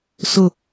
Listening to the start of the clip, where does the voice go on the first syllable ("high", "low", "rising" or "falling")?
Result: falling